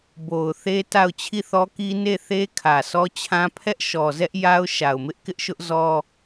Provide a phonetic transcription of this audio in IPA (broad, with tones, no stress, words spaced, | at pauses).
bo˨ʊ̯θe˦ ta˦˨ʊ̯ t͡ɕʰi˦˨θɔ˦ki˦ ne˦˨θe˦ kʰä˨sɔ˦t͡ɕʰã˦ pʰɛ˦ʔʃɔ˨zɛ˦ʔ ja˦ʊ̯ ʃa˨ʊ̯mɪ˦ʔkɪ˦ʔʃʊ˦ʔ zɔ˦